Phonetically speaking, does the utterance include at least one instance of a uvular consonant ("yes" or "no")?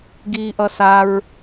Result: no